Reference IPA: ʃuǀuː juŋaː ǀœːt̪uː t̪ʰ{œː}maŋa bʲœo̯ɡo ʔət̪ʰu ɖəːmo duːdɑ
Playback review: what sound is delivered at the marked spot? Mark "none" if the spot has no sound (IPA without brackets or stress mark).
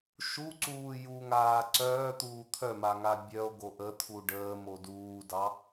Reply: œ